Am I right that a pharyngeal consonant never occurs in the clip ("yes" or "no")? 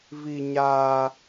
yes